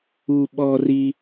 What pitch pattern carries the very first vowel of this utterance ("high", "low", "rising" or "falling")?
high